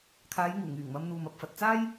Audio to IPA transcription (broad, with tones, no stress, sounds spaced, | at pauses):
kʰ aː˨˧ j ŋ uː˨˩ ŋ yː˨˩ ŋ m ɐ˧ m n̪ uː˨ m ɐ˧ p̚ f ɐ˨ t̚ t͡s aː˥ j